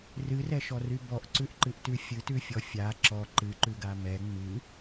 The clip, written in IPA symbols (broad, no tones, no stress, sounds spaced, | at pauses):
r ɨ r ɛ ʃ ɔ r y b ɔ ʔ ǀ ʉ ʔ ǃ ɨ ʔ t ʉ fʲ ɨ t ʉ fʲ ɔ fʲ a ǁ ɔ ǃ ɨ ǃ ʉ ɡ a m ɛ ŋ͡m ɨ